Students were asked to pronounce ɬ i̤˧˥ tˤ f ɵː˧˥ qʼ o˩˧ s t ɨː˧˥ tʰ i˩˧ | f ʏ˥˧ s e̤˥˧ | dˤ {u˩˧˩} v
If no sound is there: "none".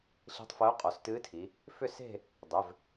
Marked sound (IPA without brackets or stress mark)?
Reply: ʏ˩˧˩